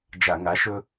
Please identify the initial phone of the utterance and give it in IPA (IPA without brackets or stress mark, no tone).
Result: d͡ʒ